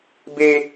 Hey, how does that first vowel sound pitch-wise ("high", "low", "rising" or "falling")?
high